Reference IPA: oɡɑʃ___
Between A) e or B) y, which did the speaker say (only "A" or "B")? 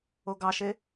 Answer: A